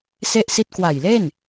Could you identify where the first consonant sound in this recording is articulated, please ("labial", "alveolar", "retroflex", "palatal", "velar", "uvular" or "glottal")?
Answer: alveolar